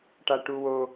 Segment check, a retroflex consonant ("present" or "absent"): present